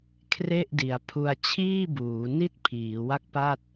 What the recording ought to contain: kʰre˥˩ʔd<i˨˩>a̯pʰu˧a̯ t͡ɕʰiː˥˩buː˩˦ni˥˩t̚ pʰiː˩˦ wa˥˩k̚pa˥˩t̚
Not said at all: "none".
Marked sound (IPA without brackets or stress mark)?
i˩˦